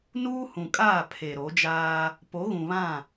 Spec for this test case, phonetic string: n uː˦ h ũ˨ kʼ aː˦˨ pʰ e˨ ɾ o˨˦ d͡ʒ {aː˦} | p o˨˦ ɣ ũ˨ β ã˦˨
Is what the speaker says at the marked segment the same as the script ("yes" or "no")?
yes